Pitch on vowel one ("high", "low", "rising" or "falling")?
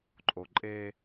low